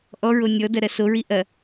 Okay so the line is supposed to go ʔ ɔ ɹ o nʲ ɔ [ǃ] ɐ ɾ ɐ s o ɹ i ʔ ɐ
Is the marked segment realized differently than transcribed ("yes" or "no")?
yes